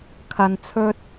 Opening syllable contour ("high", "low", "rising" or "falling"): low